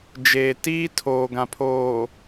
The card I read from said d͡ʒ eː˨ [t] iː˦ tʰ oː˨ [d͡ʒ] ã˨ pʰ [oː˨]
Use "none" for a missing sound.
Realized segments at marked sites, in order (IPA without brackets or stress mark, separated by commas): t, ɡ, oː˨